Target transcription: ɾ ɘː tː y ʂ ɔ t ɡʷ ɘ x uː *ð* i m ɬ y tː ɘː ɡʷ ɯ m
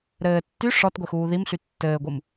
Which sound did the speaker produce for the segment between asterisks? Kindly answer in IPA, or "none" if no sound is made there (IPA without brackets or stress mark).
ð